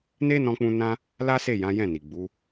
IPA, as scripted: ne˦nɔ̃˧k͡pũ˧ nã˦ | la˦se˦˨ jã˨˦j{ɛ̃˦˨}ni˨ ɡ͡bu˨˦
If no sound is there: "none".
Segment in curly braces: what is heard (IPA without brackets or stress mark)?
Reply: ɛ̃˦˨